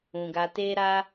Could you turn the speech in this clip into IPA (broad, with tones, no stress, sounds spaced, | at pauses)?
ũ˧ ɡ a˦ t e˦ ɾ a˦